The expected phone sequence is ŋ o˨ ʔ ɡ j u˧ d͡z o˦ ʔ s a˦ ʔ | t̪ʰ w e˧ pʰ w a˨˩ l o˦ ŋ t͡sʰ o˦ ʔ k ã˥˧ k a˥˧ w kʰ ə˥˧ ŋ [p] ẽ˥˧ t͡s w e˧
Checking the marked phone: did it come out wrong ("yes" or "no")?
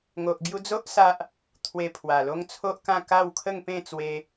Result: no